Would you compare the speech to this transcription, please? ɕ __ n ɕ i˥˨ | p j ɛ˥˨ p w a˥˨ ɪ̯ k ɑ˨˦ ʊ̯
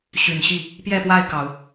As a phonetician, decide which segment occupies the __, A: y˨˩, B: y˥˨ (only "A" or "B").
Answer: A